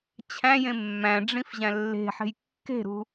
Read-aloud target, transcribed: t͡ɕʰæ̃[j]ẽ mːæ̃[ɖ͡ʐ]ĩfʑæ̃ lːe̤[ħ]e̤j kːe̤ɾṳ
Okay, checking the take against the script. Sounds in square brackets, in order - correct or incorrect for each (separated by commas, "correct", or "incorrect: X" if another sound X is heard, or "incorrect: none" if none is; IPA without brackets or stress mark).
correct, correct, correct